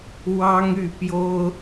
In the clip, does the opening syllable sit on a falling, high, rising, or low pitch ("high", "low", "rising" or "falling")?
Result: high